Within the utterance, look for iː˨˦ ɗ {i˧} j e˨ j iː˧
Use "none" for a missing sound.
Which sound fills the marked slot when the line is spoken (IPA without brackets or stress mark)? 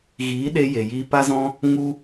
e˧